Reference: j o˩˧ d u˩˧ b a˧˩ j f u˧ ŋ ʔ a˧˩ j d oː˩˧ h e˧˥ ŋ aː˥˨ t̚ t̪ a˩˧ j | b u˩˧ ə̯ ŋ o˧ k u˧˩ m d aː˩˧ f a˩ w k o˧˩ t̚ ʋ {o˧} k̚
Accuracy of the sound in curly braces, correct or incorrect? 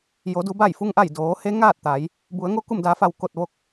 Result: correct